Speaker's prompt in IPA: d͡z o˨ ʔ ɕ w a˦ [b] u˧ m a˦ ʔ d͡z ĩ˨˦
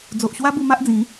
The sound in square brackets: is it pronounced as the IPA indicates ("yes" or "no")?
yes